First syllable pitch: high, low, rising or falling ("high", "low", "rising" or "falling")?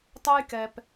high